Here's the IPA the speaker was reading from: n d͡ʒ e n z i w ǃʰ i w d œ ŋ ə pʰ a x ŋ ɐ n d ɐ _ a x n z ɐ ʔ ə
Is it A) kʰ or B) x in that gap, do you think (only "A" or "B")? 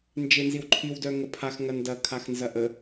A